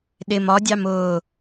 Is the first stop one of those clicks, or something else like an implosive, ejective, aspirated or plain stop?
implosive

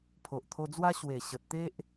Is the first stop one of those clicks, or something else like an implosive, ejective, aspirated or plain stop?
aspirated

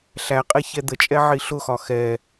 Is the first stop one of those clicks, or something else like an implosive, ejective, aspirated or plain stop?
ejective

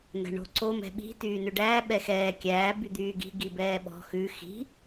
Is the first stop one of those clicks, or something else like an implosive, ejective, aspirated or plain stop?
click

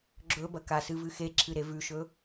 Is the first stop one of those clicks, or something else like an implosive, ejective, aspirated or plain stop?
click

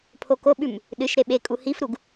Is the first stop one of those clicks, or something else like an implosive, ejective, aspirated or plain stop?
aspirated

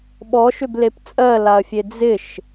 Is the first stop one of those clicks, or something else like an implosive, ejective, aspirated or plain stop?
implosive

